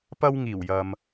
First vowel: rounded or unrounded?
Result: unrounded